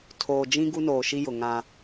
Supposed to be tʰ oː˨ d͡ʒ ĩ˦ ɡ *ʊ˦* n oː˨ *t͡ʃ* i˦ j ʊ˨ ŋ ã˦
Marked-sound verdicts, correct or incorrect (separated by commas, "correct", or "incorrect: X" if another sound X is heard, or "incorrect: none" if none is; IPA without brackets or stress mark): incorrect: u˦, incorrect: ʃ